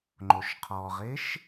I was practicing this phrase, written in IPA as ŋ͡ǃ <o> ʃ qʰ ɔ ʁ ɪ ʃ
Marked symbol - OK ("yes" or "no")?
yes